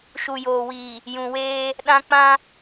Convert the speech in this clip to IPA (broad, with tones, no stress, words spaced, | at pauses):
ʃu˨joː˨wiː˨ | jũ˨weː˦ | ɗã˦ k͡pã˦